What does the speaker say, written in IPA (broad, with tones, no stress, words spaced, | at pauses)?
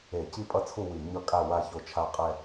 e˧˩˧ ci˦˨pʼʌ˦˨t͡sʰu˦˨ wi˧˩˧ ɲʌ˦˨kʼa˦˨wa˦˨ ço˦˨t͡ʃʰa˦˨ qʼɛ˦˨